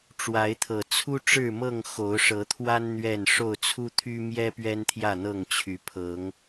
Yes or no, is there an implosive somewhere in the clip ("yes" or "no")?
no